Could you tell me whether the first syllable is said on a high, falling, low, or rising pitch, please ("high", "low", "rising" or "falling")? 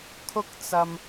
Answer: high